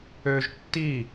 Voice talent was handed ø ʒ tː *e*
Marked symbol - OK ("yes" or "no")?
no